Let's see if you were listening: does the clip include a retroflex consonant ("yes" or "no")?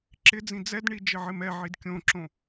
yes